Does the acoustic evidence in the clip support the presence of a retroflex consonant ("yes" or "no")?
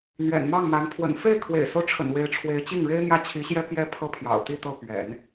yes